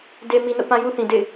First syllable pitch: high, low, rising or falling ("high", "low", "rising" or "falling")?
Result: low